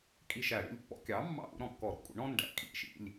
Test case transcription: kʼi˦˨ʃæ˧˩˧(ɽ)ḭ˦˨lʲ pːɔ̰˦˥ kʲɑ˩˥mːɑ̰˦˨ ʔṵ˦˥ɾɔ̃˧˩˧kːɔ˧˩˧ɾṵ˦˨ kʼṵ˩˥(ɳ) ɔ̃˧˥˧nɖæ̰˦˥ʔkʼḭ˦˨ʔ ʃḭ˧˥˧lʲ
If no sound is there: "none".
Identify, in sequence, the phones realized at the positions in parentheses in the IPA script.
ɽ, ɳ

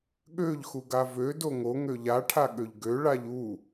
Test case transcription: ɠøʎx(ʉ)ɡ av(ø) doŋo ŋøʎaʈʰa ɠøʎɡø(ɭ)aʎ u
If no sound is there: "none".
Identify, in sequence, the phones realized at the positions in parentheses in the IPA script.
u, ø, ɭ

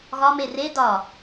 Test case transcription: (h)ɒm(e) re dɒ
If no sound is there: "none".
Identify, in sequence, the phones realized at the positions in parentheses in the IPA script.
ɣ, e

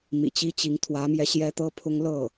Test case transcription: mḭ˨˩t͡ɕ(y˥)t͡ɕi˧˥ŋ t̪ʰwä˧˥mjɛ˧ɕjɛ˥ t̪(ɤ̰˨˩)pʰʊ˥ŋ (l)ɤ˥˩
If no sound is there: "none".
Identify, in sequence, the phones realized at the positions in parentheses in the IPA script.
i˥, ɤ˥, l

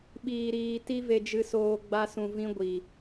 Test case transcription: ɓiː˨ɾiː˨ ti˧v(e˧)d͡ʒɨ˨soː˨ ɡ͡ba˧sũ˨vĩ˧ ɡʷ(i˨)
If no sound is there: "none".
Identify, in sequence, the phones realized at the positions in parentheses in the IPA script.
e˨, i˨

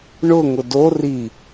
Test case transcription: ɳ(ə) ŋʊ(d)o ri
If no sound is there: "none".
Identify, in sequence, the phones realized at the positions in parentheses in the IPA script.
ʊ, d

